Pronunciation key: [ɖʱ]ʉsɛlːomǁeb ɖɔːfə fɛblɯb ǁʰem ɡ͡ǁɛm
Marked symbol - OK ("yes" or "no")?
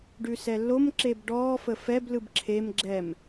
no